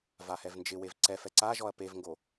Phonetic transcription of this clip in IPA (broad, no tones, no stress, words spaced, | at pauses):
vahɛvnd͡ʒɪwev ǀɛfɛ ǀaʒɔɐ̯ pevŋɡo